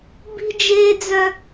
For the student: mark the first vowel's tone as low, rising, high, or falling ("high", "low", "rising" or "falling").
high